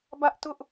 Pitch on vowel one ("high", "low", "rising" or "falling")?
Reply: high